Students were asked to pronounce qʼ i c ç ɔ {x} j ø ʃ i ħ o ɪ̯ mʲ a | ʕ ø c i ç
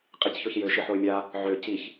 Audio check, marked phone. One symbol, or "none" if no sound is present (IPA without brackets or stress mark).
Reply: ç